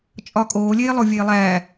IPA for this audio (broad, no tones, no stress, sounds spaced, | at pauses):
t͡ʃʼ ɒ kʼ oː lʲ eː lˠ o vʲ eː lˠ æ